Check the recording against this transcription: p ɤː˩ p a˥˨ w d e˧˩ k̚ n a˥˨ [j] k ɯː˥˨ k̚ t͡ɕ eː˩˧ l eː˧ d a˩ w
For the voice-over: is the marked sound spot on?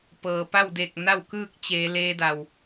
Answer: no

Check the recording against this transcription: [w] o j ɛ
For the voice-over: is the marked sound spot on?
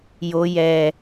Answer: no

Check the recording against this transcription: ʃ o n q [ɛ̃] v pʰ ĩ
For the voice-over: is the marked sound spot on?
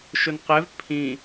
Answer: no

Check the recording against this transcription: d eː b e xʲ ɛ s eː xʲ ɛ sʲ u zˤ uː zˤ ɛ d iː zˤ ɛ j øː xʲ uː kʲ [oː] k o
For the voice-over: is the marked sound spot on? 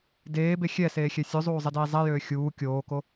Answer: yes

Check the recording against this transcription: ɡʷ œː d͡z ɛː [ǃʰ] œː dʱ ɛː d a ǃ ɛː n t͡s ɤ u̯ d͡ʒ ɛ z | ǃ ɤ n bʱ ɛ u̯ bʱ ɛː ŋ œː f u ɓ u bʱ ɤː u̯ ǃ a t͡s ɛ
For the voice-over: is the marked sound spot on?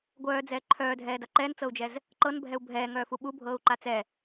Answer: yes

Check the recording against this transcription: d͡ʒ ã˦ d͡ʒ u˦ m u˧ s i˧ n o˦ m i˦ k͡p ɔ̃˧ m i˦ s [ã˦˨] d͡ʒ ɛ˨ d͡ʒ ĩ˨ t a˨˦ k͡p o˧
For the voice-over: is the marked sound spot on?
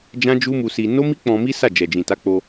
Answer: no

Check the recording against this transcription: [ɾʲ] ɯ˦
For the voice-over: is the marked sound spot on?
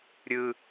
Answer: yes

